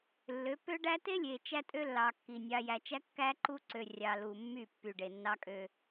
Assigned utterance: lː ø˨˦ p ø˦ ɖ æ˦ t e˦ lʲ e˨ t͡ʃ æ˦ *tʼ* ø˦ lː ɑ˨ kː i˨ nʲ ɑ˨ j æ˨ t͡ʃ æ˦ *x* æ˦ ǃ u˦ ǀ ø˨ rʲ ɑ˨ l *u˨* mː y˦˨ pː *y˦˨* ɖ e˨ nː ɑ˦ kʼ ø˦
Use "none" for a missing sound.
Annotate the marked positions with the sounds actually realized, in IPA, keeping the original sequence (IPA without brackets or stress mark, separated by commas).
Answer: tʼ, kː, u˨, y˨